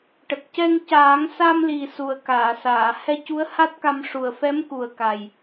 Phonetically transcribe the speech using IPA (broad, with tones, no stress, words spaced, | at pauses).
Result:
ʈə˨˩k̚cɛ˧ŋ caː˨˩˦ŋ sa˧mli˨˩ su˨˩ə̯kaː˨˩˨saː˨˩˨ hɛ˧cu˧˥ə̯ ha˦˥t̚ka˧m ʂu˨˩ə̯fɛ˧˥mku˨˩ə̯ ka˨˩j